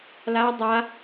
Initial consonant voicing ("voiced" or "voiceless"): voiced